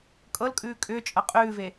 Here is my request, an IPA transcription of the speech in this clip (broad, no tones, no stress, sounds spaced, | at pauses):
kʼ ɤ l kʼ ʉː kʼ ʏː t͡ʃʼ ɤ qʼ ʉː v e